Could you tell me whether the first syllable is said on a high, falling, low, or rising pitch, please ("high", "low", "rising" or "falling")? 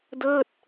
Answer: falling